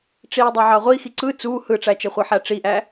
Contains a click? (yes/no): yes